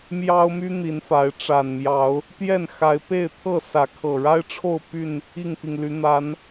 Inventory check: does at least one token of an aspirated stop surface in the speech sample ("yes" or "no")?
yes